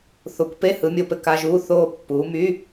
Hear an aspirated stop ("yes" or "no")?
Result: no